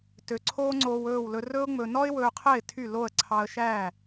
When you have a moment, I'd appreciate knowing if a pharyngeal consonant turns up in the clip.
no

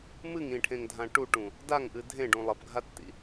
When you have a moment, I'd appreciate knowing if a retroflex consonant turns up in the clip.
yes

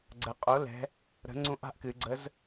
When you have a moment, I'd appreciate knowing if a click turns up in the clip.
yes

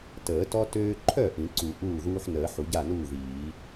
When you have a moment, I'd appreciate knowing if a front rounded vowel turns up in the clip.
yes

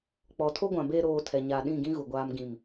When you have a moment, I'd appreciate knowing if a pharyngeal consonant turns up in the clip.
no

